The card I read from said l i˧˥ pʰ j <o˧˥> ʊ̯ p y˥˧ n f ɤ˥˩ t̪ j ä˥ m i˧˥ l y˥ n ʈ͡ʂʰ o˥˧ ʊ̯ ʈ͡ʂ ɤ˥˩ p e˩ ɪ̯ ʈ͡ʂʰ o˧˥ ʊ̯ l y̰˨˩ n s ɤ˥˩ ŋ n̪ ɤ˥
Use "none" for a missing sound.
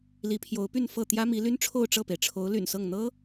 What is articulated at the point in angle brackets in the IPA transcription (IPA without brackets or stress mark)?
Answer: o˧˥